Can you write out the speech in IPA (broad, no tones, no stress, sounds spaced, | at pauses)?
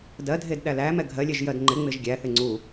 d ɜ dʱ e d ɗ æ l æ m ɛ ɡʱ ɜ lʲ ɛ ʒ j ɜ d ŋ͡ǃ ɪ ŋ͡m ɪ ʒ ɡʲ æ θ ɪ ŋ͡ǀ u